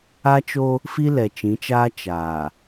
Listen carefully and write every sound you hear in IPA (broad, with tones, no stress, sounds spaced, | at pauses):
a˦ t͡ʃ o˦ | f i˦ l ɛ˨ t͡ʃ ĩ˨˦ t͡ʃ aː˦ t͡ʃ aː˨